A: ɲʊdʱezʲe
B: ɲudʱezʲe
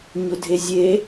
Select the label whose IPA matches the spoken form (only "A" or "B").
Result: A